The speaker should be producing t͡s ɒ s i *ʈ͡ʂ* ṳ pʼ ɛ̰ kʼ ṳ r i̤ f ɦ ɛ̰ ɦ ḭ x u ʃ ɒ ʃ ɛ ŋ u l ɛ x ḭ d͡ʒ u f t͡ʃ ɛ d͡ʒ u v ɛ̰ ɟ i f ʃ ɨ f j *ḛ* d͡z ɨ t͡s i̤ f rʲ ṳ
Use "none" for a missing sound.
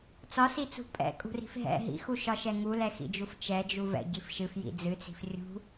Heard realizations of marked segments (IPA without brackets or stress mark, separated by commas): t͡s, ḭ